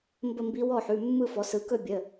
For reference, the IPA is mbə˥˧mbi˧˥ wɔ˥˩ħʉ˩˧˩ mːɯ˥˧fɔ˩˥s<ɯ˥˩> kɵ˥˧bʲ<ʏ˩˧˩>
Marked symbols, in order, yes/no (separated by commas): no, no